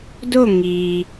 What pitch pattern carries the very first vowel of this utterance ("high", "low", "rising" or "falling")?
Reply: falling